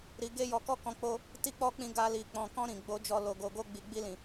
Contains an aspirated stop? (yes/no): no